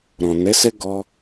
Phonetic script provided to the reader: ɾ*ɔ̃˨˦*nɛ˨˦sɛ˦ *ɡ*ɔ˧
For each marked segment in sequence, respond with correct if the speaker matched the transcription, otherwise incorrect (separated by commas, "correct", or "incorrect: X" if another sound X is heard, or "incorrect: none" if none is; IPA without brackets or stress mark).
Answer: incorrect: ɔ̃˨, correct